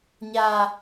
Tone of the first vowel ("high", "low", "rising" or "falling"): low